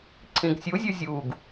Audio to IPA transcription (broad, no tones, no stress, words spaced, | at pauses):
ǀʰĩɡsʲuzʲu zʲuɡ